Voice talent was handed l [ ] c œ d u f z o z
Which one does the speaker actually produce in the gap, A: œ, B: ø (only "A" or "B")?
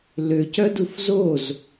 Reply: B